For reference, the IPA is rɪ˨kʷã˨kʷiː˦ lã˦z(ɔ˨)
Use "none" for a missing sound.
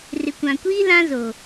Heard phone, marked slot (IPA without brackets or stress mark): o˨